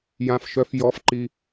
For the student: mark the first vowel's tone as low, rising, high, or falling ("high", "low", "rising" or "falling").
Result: low